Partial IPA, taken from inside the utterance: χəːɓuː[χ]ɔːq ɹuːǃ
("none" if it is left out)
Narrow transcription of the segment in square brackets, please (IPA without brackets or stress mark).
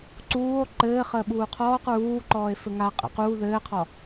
qʰ